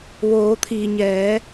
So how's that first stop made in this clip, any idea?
aspirated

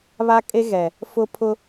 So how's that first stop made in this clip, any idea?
ejective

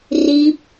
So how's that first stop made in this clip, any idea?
plain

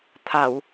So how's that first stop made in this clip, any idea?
aspirated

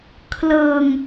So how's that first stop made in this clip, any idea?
aspirated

